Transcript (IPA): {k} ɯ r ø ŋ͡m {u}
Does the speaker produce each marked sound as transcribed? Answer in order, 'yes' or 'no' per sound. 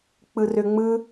no, no

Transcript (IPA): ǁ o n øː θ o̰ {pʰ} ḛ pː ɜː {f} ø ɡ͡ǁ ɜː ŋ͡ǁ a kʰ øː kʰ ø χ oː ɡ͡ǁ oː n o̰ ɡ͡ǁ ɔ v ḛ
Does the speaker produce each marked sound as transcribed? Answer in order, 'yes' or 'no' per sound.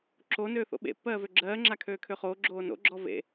no, no

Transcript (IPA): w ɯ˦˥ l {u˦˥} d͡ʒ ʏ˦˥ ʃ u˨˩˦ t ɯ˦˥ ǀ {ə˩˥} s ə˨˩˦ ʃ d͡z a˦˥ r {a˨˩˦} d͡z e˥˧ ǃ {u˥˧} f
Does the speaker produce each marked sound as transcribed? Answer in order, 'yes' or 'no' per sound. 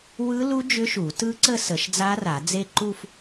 yes, no, yes, yes

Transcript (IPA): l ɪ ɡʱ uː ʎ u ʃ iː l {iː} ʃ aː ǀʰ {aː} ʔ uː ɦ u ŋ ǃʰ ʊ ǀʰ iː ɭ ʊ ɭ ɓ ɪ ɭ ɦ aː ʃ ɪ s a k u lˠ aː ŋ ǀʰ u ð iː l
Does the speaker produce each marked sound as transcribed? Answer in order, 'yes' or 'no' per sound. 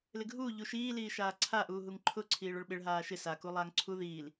yes, no

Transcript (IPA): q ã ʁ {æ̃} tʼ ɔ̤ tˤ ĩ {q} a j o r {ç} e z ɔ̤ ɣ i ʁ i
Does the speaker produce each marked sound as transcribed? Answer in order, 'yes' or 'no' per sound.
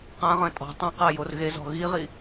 no, yes, no

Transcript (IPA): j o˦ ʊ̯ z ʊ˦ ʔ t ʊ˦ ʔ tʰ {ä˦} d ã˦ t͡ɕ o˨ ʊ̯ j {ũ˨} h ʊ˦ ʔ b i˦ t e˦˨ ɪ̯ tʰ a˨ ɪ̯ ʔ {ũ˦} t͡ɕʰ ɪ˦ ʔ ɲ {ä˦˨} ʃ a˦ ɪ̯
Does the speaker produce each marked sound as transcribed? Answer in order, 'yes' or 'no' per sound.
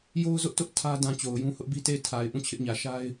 yes, no, no, no

